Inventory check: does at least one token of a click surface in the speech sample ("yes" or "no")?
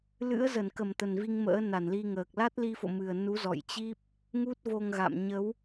no